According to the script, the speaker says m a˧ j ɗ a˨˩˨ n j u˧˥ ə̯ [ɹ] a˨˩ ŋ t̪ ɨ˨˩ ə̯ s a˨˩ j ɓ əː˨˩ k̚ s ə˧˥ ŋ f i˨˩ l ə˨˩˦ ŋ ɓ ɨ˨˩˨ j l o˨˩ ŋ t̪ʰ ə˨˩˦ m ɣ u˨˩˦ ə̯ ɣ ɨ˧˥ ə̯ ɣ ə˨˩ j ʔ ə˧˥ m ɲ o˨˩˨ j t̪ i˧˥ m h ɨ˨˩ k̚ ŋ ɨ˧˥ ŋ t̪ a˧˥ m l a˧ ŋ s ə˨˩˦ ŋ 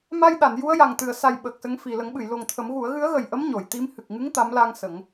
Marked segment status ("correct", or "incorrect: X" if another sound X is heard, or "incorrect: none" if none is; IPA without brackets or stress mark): incorrect: j